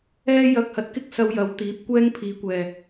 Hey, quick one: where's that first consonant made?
palate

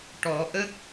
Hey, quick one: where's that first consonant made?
retroflex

